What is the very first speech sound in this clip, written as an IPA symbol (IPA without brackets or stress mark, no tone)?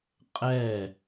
qʼ